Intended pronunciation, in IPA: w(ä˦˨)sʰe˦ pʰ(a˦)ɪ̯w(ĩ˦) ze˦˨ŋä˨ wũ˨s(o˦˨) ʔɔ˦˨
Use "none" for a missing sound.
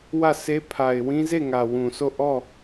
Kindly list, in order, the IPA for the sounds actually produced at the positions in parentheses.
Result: ä˦˨, a˨, ĩ˦, o˦˨

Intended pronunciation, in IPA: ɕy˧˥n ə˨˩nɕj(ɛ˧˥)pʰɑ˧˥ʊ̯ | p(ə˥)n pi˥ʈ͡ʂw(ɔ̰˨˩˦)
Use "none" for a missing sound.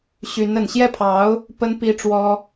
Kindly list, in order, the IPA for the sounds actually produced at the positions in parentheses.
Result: ɛ˥˩, ə˥, ɔ˥

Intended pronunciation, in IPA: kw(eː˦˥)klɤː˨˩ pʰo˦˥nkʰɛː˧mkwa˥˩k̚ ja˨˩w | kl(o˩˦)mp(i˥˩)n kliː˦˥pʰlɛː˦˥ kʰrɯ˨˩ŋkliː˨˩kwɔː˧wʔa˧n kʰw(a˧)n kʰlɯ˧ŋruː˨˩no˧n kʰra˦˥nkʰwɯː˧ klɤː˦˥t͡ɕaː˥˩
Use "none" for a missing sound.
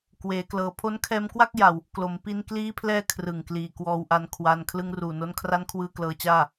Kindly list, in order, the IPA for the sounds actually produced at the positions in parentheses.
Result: eː˩˦, o˩˦, i˧, a˧

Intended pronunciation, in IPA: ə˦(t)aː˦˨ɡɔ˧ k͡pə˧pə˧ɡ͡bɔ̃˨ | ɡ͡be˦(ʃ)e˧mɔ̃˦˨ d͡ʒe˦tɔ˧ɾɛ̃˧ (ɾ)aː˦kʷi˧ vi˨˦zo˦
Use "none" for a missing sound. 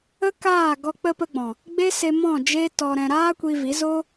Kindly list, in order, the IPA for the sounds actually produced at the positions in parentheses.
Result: k, s, ɾ

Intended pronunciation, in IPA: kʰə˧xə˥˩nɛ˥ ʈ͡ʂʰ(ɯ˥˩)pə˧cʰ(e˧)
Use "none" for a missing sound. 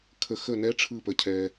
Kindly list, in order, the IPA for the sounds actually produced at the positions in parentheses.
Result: ɯ˥˩, ɛ˧

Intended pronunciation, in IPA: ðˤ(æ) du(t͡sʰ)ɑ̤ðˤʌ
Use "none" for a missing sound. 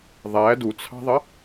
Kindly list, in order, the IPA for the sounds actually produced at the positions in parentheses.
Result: æ, t͡sʰ

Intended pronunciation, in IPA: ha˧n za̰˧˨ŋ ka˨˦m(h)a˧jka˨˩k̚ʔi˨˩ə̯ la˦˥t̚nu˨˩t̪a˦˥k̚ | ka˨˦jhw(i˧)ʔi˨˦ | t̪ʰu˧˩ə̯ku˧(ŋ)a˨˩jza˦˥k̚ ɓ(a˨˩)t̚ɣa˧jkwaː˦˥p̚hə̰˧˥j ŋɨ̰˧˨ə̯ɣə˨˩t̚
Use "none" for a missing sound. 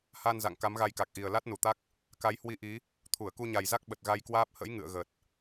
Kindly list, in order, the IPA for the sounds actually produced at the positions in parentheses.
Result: ɣ, i˧, ɲ, ə˨˩

